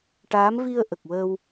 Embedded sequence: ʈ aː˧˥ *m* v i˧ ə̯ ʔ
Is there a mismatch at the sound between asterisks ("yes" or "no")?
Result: no